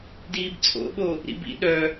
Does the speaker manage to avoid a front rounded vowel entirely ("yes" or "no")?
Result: no